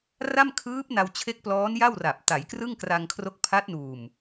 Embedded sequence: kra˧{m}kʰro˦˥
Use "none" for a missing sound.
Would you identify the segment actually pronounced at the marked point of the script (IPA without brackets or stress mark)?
ŋ